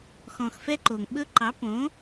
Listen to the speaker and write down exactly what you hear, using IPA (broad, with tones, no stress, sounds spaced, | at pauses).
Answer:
x ɔ̃˨ x f ɛ˦ ǃ o˨ ŋ ɓ ɵ˦ ǃ ɑ˨˦ p õ˨˦